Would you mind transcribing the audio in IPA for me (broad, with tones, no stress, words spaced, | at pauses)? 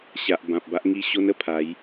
ɕa˨ʔ bã˨p̚ba˦ʔŋi˥˧ ɕo˦nə˧pʰa˨˦j